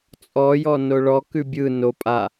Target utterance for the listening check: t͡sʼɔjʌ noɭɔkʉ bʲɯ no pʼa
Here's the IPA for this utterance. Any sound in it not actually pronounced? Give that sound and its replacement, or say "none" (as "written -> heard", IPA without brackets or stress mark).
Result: ʌ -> ɔ